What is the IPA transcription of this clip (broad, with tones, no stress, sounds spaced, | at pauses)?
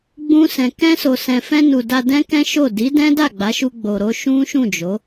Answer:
ɡ͡b ũ˧ s ɛ̃˨ k ɛ̃˧ s o˨ s ɛ̃˨ f ɛ̃˧ n u˨ d a˧ d ɛ̃˦ k ɛ̃˦ ʃ o˦˨ d i˨˦ d ɛ̃˦ d a˦˨ ɡ͡b a˨˦ ʃ u˧ ɡ͡b o˧ ɾ o˦ ʃ ũ˦ ʃ ũ˦˨ d͡ʒ o˨˦